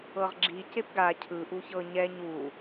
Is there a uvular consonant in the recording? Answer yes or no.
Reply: yes